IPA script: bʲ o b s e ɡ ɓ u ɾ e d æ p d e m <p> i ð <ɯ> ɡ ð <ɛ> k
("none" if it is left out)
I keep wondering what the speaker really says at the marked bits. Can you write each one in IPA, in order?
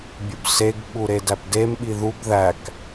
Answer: ɓ, u, æ

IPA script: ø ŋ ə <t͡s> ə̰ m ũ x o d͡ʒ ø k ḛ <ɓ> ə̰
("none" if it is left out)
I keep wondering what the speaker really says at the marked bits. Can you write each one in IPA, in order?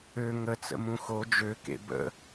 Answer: t͡s, b

